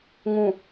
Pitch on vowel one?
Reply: low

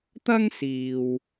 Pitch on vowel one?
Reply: high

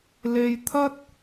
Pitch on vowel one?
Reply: high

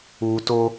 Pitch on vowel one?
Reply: low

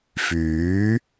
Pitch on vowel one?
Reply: rising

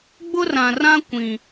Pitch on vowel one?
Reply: high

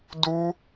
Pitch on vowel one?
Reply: high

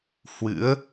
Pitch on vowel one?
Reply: rising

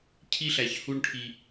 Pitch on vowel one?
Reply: high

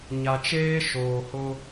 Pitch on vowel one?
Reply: low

